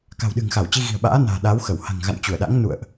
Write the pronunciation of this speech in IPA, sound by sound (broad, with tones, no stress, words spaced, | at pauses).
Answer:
ka̤˨˩wɗɨ̤˨˩ŋxa˧˩wt͡ɕi˧ ɣi̤˨˩ə̯ɓa̰ː˧˥na̤ː˨˩ ɗa˨˦wxə˧˩w ha̤˨˩ŋɣa̰˧˨n t͡ɕu˧˩ə̯ɗa̰˧˥ŋnṵ˧˨ə̯ʔ